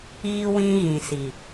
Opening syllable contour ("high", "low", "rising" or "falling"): high